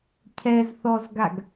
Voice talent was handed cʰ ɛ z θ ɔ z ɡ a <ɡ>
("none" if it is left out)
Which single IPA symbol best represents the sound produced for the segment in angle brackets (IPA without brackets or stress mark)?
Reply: ɡ